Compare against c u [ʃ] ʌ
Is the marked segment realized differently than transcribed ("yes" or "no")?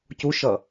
no